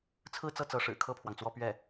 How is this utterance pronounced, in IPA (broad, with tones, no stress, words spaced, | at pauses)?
t͡sʰɹ̩˥˧t͡sɤ˥˩ t͡sɤ˧˥ʂɻ̩˨˩ kʰɤ˥˩pʰwɑ˩ŋt͡swɔ˥˧ pɥɛ˥˩